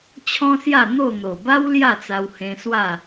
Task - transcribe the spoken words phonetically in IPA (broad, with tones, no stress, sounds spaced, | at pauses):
t͡ɕʰ ɔ̃˦ s j a˥˧ n̪ o˥˧ n̪ o˨˩ b a˦ w l j a˥˧ t͡s a˧ w h ẽ˧ s w a˥˧